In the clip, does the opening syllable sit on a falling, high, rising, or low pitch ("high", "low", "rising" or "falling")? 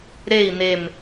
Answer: falling